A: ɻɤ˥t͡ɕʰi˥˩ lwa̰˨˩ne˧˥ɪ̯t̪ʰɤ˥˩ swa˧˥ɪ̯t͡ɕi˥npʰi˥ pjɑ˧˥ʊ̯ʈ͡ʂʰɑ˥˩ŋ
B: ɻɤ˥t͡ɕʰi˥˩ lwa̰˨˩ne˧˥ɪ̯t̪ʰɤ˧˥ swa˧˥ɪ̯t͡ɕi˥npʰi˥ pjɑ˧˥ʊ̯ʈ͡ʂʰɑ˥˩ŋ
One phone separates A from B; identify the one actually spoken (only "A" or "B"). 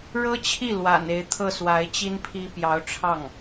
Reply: A